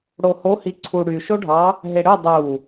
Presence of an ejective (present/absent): absent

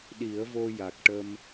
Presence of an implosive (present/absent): present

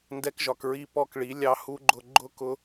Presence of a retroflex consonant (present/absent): present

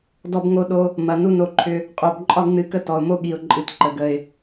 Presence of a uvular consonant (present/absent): present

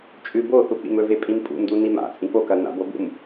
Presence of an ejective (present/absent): present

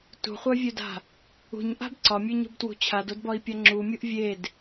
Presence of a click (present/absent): present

